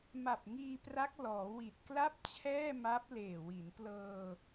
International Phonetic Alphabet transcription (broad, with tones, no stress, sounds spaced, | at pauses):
m a˨˩ p̚ ŋ iː˧ p r a˦˥ k̚ l ɔː˩˦ w i˨˩ t̚ k l a˥˩ p̚ t͡ɕʰ ɛː˥˩ m a˦˥ p̚ l eː˨˩ w i˩˦ n p l ɤː˧